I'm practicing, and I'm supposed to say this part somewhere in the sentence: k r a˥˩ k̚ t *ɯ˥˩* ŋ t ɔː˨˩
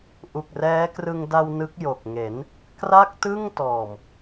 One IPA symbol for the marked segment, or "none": ɯ˥˩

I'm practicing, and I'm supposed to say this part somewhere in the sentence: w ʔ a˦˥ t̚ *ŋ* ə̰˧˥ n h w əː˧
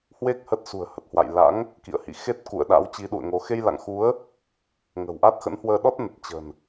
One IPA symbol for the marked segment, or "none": x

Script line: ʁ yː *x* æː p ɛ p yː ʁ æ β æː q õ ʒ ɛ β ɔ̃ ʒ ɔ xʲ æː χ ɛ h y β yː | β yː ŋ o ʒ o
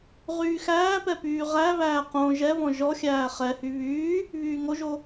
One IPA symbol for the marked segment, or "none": x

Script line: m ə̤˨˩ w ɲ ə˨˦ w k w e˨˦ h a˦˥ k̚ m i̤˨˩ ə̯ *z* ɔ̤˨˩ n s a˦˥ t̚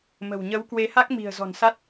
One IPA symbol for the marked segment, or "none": z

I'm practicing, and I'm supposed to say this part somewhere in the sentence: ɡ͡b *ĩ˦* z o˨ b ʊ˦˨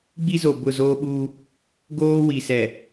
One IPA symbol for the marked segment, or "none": i˦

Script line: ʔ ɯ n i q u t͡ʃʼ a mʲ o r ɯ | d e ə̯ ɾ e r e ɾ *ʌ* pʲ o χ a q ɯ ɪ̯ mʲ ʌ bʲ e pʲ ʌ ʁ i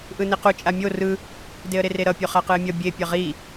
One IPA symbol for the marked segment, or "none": ʌ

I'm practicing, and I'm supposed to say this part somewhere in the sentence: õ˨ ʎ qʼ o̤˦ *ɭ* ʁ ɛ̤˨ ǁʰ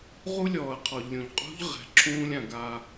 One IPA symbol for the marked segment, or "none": ʎ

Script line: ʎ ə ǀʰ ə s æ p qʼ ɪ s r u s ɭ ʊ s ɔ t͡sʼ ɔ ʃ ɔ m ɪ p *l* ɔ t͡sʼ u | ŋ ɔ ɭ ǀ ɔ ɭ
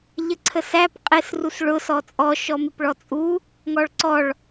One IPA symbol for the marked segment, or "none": ɭ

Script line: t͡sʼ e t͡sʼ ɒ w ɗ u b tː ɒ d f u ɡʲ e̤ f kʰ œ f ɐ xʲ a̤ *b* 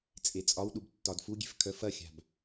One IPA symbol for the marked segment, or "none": b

